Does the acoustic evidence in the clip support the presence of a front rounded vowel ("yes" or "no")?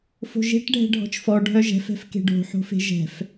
yes